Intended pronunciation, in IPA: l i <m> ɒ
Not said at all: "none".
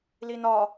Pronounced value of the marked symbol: n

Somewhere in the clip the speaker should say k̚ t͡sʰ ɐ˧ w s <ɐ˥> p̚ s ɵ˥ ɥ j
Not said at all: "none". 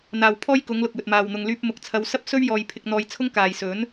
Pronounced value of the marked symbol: ɐ˥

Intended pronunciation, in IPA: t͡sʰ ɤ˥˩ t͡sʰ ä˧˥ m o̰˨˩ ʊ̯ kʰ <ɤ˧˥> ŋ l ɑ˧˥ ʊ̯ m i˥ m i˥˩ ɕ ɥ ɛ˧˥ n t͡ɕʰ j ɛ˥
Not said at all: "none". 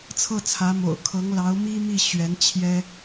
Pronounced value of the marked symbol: ɤ˧˥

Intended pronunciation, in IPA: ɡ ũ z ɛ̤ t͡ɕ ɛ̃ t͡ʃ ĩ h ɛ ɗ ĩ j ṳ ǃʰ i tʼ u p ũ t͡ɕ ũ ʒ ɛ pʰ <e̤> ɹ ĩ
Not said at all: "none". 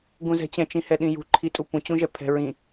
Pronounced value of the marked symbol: ɛ̤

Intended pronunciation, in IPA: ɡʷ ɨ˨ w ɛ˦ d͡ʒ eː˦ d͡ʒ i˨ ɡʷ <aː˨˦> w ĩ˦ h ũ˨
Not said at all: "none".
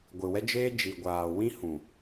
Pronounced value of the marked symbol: aː˨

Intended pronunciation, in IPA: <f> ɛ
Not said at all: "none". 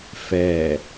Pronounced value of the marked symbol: f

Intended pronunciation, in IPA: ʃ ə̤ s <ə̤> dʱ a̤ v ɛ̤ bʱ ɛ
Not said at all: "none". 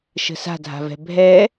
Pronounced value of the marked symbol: a̤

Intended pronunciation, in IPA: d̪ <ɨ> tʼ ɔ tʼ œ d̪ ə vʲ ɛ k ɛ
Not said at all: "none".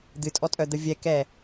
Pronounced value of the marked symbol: ɨ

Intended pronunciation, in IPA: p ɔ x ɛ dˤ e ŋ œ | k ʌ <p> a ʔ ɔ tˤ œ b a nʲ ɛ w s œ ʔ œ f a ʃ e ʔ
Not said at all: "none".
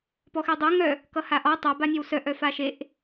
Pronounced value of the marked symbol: h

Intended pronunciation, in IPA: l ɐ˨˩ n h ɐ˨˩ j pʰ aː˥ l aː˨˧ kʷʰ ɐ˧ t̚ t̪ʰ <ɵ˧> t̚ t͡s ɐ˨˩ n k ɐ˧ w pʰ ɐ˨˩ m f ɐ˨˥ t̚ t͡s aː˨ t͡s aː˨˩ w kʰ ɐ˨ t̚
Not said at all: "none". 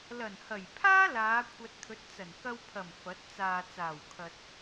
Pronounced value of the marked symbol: ɵ˨˥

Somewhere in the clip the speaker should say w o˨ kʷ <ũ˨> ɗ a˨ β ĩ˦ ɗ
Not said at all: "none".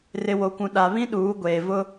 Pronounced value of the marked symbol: ũ˨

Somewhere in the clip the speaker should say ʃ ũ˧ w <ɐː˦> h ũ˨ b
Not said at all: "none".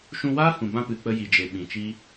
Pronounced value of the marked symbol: aː˦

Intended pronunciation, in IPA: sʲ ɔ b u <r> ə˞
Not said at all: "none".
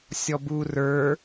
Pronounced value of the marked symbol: r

